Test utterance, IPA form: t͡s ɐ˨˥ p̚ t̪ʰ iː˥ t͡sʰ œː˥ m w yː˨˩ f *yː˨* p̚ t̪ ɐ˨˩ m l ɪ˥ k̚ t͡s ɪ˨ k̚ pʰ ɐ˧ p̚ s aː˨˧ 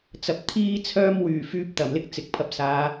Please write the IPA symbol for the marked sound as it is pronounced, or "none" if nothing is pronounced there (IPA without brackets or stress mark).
yː˧